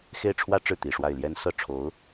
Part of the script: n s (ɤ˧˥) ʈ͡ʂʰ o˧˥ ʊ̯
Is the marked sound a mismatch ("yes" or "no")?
yes